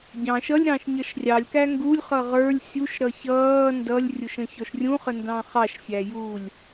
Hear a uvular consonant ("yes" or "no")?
yes